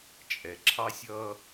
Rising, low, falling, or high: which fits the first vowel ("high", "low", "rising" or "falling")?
low